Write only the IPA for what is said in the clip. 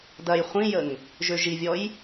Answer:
dɐj χʷĩjəŋ | ʒøʒivʲɔj

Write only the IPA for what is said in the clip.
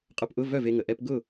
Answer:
qʼʊ˧˥˧pʔʊ˧˥˧vœ˥˩v e˧ŋə˩ ʔɛ˧pɡʊ˥˩

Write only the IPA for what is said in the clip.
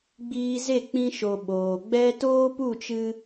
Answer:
ɡ͡biː˧ze˦˨ k͡pĩ˧ʃo˨ ɓoː˨ɡ͡bɛ˦ toː˦pu˦˨t͡ʃɨ˧

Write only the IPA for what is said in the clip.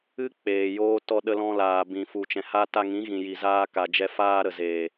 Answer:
ɨ˦ k͡peː˨joː˦ tɔ˧ɗə˧lɔ̃˧laː˨ bĩ˨ fu˨t͡ʃɛ̃˨ha˧ ta˧ŋĩ˨˦ɣĩ˨ji˨ zaː˧ka˨d͡ʒɛ˧ faː˧ɾə˨ zeː˨

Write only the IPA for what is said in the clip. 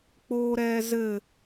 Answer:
k͡poːɾɛːzɘ

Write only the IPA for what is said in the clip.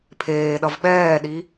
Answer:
pʰeːɗʌv ɓɛːɗi

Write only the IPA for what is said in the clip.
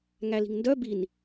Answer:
ŋæli̤ŋndœ bin

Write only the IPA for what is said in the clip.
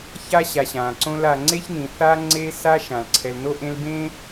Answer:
ça˥ɕa˨ɕã˩ǀõ˦l a˨ŋ͡ǀe˥çnĩ˩ θa˦ ŋ͡ǀe˦sa˦ ʃã˩lǀʰɛ˨lno˥ ʔẽ˦lbẽ˥

